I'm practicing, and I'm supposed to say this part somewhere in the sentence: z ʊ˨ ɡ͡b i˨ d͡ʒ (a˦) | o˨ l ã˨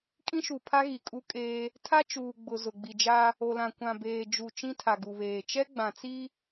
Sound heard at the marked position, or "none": a˦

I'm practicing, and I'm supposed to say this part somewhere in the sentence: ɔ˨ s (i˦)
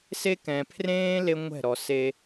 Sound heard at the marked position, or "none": e˦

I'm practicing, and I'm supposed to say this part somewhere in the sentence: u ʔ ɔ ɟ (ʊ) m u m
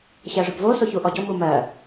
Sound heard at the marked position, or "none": ʊ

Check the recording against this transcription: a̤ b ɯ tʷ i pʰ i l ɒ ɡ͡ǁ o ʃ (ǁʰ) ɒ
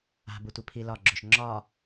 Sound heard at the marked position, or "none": ŋ͡ǁ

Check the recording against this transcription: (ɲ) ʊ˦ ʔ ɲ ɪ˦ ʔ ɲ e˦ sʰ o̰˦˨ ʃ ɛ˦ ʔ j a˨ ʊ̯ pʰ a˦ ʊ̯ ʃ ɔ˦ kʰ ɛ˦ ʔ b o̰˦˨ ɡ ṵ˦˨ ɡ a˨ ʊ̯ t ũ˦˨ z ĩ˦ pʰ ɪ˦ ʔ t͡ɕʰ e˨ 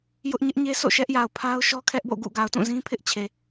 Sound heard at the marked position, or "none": j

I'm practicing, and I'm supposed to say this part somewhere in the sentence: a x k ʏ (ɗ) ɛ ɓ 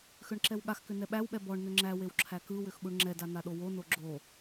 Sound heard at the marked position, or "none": n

